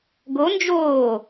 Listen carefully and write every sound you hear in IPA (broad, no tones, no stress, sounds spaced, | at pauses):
ɡ o n d͡ʒ oː